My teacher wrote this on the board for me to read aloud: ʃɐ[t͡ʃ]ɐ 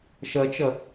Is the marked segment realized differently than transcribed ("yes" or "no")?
no